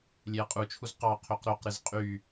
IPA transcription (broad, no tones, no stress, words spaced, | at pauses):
lʲeɐ̯qʼut͡ʃʰuz qɑ qʰøqɾoqɾɯz qʼy